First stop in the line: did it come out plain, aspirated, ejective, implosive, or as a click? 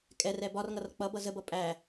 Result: ejective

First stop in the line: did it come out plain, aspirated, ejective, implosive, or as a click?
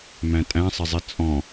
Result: ejective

